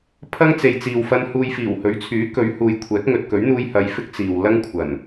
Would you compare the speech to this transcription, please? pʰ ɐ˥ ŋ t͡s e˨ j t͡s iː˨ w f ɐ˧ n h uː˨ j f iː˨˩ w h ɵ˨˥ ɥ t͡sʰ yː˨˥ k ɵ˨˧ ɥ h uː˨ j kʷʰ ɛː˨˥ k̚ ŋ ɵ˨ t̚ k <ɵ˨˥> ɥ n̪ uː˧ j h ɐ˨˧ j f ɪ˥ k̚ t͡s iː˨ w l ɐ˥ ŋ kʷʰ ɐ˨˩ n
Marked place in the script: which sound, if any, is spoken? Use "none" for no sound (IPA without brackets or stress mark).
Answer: ɵ˨˥